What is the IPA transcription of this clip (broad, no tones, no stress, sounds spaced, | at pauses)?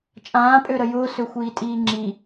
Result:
t͡ʃʼ ãː pʼ ø ɾ ə j ʊː s ø xʷ iː tʼ iː ŋ͡ǁ i